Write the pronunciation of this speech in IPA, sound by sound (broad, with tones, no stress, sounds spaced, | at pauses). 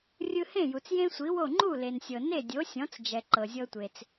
rʲ ɯ˧ h ẽ˥˩ j u˩ t͡s j ẽ˥ sʷ i˩˥ w o˥˩ ŋ͡ǃ u˥˩ l e˩ n sʲ ɤ˩ n e˥˩ dʲ o˩˥ sʲ ɔ̃˩˥ t͡s d͡ʒ ɛ˩ ǃ ɤ˩ zʲ ɤ˧ tʷ e˩ t͡s